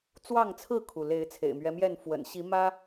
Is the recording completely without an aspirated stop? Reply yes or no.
no